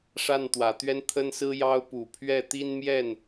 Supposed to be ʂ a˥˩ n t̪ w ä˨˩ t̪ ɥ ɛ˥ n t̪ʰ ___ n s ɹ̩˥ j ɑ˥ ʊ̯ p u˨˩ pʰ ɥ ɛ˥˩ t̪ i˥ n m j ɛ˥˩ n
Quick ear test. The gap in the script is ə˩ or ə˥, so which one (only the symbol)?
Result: ə˥